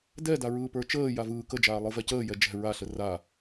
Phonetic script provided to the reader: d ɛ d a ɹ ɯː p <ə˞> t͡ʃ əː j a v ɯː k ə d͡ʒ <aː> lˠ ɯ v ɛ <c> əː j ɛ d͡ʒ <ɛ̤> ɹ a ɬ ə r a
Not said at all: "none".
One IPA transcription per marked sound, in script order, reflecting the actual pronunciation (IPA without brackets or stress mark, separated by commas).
ə˞, aː, c, ɛ̤